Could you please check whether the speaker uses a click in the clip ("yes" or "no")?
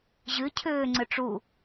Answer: yes